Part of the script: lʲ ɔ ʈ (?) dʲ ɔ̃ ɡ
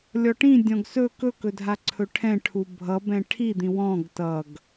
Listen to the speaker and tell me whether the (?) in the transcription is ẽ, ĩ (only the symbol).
ĩ